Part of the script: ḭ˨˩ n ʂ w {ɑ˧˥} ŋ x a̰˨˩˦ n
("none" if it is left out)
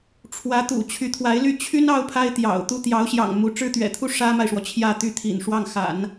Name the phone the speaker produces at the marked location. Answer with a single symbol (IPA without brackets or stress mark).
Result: ɑ˥˩